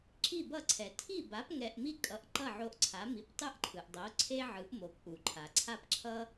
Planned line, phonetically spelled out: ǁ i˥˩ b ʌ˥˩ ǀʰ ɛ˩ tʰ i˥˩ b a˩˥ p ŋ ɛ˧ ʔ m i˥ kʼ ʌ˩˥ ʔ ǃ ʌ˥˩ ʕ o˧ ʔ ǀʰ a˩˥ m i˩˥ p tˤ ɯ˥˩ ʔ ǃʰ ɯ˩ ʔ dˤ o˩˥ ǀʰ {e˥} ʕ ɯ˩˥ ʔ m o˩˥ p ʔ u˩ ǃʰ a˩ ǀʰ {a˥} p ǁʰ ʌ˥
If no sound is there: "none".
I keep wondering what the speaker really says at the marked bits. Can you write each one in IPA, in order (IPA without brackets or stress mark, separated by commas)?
e˥, a˥